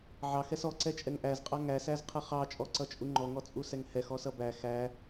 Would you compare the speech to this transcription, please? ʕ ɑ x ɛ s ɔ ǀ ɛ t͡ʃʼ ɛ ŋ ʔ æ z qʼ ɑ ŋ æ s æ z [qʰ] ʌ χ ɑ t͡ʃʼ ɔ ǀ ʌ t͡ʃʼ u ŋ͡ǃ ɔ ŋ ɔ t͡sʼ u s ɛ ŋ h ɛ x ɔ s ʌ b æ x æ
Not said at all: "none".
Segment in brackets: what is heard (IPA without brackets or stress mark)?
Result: qʰ